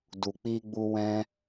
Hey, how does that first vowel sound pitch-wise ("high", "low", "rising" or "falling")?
low